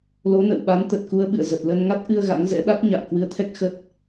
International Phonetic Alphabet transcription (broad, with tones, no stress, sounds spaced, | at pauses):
l o˨˦ n ə̰˧˨ w ɓ a˨˦ n t̪ ə˨˩ t̚ k u˧ ə̯ ɓ ɨ̰˧˨ ə̯ z ə˨˩ t̚ l ə˧ n ŋ a˦˥ t̚ ʔ ɨ˧ ə̯ ɣ a̰˧˥ ŋ z ɛ̰˧˥ ɗ a˦˥ t̚ ɲ a̰ː˧˨ k w ɨ˧ ə̯ t̪ʰ ɛ˦˥ k̚ x ə˦˥ t̚